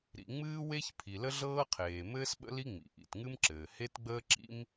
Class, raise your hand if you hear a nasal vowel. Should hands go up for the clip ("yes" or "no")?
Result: no